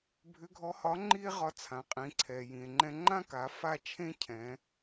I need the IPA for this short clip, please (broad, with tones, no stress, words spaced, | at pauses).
bʱʏ˧˥ɡʱɔ˧˥hɒ˧˥ ŋ͡ǃi˥e̯ʁɒ˧ t͡sʰã˩˧qʼĩ˩˧ǀʰɛ˩ jĩ˩e̯ŋ͡ǃɛ̃˧ŋ͡ǃã˥ka˩˧ fa˥t͡ʃʰẽ˥cʰɛ̃˩˧